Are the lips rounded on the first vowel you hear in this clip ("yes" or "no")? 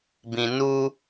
no